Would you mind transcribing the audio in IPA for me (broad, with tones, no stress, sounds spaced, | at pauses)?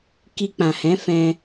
k i˧ k͡p ã˨ h ɛ̃˨˦ f ɛ̃˧